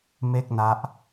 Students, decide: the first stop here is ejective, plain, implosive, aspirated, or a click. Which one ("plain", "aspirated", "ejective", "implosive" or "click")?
plain